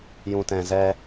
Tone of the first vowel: low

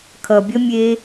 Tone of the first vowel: low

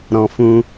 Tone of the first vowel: low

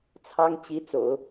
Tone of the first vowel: high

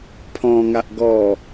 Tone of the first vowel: low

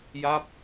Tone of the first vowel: falling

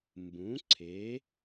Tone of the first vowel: rising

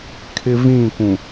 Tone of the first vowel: high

